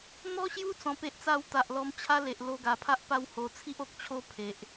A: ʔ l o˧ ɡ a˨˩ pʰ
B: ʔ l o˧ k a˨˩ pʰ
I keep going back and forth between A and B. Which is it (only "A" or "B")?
A